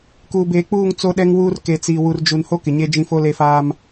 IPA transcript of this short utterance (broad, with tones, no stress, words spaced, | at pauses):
kuː˨beː˨k͡puː˦˨ŋ t͡so˦ɗɛ˦ŋwuː˦r ke˨t͡siː˨ wu˨rd͡ʒu˨n ho˦ kɪ˨ɲe˦d͡ʒĩ˦ fo˦le˦ faː˦m